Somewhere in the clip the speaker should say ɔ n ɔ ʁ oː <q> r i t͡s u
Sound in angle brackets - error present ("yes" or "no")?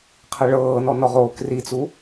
yes